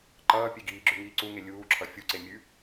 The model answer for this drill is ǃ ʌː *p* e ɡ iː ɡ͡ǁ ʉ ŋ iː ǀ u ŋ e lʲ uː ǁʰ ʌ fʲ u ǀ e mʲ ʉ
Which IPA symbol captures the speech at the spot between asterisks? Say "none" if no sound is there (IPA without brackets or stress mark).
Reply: pʲ